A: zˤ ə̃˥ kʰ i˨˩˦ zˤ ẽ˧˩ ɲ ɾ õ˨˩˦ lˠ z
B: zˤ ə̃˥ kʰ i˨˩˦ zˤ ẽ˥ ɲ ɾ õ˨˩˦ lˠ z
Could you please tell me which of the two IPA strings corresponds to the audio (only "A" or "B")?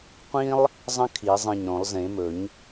A